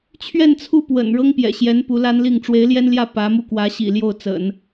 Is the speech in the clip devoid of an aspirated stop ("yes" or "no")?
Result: no